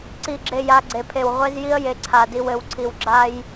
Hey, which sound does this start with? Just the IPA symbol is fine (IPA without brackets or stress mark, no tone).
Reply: ǀ